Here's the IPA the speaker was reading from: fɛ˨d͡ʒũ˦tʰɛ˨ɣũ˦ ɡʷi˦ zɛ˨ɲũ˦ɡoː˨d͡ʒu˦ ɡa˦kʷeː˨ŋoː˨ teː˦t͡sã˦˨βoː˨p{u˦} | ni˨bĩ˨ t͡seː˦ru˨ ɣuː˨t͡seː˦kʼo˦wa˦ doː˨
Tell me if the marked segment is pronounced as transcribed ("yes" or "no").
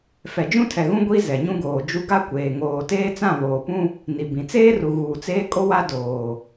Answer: no